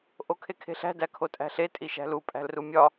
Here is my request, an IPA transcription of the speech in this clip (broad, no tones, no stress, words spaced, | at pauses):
ʔokʰekʰe̤ɬæ̤ dækʰotʼæ̤ɬe tʼiʃæ̤lu pʼæ̤lrumʲɒ